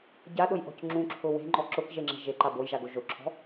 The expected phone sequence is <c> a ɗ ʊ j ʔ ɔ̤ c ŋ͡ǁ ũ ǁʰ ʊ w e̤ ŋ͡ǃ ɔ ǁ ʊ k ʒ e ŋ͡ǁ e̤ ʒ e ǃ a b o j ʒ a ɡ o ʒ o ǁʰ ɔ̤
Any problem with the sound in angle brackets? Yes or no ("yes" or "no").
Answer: yes